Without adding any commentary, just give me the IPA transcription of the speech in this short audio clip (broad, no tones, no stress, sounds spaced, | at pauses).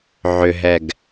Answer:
ʕ ʏ ɦ ɛ ɡ